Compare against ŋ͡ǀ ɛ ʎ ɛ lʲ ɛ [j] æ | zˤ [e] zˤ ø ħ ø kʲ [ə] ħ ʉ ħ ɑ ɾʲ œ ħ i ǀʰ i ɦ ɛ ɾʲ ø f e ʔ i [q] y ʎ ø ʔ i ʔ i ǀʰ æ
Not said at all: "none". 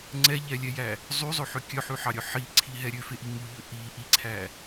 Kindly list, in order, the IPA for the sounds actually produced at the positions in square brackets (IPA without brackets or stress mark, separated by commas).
j, y, œ, ŋ